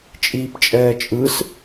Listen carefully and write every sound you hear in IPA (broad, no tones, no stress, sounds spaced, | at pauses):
t͡ʃʼ iː p t͡ʃʼ ɛː t͡ʃʼ ɯ s